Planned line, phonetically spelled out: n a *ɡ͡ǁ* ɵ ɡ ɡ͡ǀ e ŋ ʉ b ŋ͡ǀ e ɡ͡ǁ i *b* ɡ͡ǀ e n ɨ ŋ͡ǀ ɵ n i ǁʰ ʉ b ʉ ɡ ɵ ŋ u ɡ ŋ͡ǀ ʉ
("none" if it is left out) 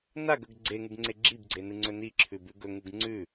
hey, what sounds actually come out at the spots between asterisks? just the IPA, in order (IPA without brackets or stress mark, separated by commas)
ɡ, b